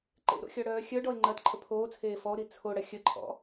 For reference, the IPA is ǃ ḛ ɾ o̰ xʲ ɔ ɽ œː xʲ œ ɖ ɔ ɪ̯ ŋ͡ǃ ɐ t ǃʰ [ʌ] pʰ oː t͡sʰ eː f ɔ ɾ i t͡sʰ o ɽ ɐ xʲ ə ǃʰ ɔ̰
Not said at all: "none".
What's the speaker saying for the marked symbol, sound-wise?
ə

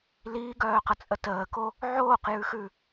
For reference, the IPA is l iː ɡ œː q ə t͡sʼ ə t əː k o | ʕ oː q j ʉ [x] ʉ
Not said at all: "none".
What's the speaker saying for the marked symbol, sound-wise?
x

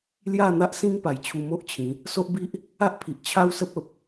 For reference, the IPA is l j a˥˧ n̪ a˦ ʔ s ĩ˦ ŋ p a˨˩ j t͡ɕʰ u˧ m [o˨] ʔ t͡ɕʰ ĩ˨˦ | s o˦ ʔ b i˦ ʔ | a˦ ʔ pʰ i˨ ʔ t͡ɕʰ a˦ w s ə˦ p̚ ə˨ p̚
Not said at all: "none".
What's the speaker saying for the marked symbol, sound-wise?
o˦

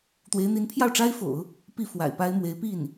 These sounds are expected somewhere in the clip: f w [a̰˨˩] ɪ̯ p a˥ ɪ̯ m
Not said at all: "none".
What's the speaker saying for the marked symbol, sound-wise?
a̰˨˩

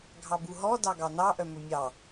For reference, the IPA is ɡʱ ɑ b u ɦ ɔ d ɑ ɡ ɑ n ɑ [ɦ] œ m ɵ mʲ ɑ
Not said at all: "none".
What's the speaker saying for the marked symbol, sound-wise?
ʔ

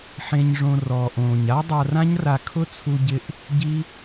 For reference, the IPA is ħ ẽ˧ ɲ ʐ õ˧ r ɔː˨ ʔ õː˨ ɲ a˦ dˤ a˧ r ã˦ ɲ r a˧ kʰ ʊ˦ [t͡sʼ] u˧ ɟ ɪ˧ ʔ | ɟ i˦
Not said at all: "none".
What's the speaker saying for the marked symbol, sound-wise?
t͡sʰ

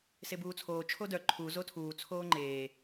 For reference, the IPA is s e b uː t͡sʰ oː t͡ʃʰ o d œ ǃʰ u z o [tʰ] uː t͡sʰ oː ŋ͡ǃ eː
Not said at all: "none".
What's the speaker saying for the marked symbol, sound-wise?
tʰ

